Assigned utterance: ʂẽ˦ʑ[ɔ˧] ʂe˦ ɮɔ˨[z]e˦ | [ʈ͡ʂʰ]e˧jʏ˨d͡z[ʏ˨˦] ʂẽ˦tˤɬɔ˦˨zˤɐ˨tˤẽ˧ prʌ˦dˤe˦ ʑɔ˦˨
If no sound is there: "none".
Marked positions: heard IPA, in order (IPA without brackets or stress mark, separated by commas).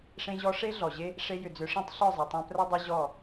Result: ɔ˦, ʑ, ʂ, ʏ˨˦